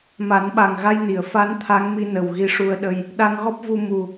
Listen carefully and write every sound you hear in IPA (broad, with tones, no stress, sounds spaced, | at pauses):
m a˨˩˦ n ɓ a˨˩ ŋ ɣ a˧ j n i˨˩˨ ə̯ f a˧˥ n t̪ʰ a˧˥ ŋ m i˧ n ə˨˩ w ɣ i˧ ʂ u˧ ə̯ ɗ ə˧ j | ɗ a˧ ŋ ɣ ɔ˦˥ p̚ v u˧ m u˨˩